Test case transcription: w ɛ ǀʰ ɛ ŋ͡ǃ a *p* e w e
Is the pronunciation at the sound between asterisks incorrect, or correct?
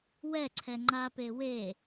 correct